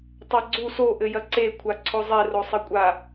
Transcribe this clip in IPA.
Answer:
tˤaɡ͡ǀu so ʔɘjɐǀe kʷʰaǀʰozˤe rosˤɘkʷʼa

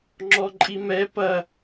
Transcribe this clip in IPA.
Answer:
ŋ͡ǁɔǃʼimɛ pɐ

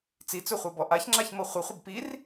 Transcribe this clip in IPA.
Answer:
t͡sit͡sɵχʷɤbɔ ʔaçŋ͡ǁaçmɤ χʷəχʷəb pir

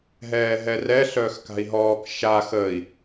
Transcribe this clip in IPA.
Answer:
ɦɛːɦɛrɛ ɬœːxka̤i̯ɦɔːk ʃa xəːi̯

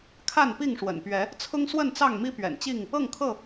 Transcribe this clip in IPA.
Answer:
kʰa˥˨npi˥˨ŋʂwə̰˨˩npɥɛ˨˦ | t͡sʰʊ˦ŋswə˥˨nt͡sɑ˥˨ŋmi˦ pɥɛ̰˨˩nt͡ɕi˥˨ŋ | ɤ˥˨ŋkʰɤ˥˨

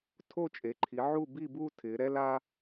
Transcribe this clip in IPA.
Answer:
tʰo˦˨t͡ʃʼe˩˧ǃʰi˩˧ ʕu˦˨bi˦˨buː˦ tʰɪː˩˧ɾɛ˦la˦

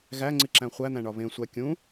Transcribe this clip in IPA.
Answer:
ɣæŋ͡ǀiǁæ̃ χʷæn̪æ̃ɳɒ βẽsʷæ kʲũ

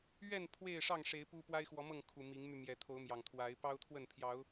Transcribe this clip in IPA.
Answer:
ɥɛ˥˨n pʰwe˥˨ɪ̯ʂɑ˥˨ŋʂe˨˦ɪ̯ pu˦ pwa˦ɪ̯xwɔ˨˦mɤ˥˨ŋkʰu˨˩ mi˨˦ŋmy˧mjɛ˨˦ t̪ʰo˨˦ʊ̯mjɑ˨˩ŋt̪ʰwa˨˦ɪ̯ pɑ˦ʊ̯t̪ʰwə˥˨npʰjɑ˨˦ʊ̯

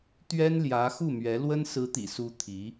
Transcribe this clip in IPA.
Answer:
t̪ɥɛ˥nljä˧˥ xu˥˩mɥɛ˧˥ lwə˥nsɹ̩˧˥t̪ḭ˨˩su˧˥ t̪ʰi˧˥

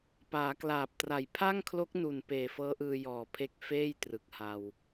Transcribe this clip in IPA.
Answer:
paː˩˦klaː˨˩p̚tra˨˩j pʰa˥˩ŋkʰlo˦˥k̚nu˨˩n peː˨˩fɤː˦˥ʔɯː˧ jɔː˨˩pʰe˦˥k̚ feː˥˩j trɯ˨˩k̚ha˧w

